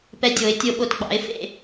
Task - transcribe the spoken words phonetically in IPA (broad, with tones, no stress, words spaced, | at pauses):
pɛ˨˦dʲo˨˩˦ɪ̯ tʲo˨˩ɓo˨˩tɡ͡bɑ̰˨˩˦ɪ̯ fḛ˥˨